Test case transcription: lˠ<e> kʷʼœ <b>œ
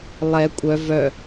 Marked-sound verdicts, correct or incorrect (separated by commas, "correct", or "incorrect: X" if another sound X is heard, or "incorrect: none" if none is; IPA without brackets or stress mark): incorrect: ɛ, incorrect: v